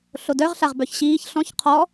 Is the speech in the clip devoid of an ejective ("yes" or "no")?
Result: yes